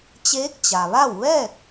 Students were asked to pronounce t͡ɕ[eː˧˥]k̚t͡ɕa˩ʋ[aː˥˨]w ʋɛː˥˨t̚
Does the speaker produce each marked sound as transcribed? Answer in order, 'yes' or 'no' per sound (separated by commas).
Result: yes, no